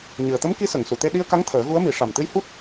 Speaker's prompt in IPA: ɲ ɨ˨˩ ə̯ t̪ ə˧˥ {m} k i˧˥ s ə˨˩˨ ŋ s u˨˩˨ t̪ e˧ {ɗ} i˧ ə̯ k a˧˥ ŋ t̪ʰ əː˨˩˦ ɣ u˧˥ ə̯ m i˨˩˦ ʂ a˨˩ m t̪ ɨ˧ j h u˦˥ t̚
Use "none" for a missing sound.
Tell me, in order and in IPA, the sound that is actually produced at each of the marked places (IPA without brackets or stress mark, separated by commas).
m, ɗ